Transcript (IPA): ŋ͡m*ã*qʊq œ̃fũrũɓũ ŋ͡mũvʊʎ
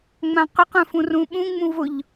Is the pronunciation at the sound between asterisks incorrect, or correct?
correct